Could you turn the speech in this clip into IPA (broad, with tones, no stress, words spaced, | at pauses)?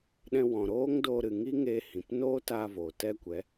ɗɛ̃˧wɔ̃˨ɾoː˦ŋdoː˧ ɾɨ˨ŋi˦ ŋeː˧hĩ˨p noː˦taː˧voː˨ tɛ˦kʷɛ˨˦